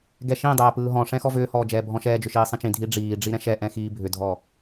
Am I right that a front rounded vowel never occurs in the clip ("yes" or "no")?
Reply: no